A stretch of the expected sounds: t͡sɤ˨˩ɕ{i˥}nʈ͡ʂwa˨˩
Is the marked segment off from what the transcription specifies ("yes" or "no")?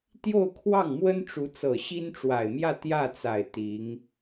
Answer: no